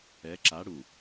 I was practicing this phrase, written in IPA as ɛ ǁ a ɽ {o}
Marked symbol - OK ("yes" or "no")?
no